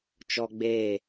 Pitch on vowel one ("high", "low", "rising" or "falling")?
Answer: high